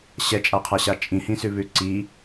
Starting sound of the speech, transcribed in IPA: ɕ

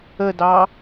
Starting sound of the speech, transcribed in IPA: ə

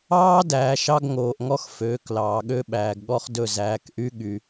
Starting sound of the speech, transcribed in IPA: ɑː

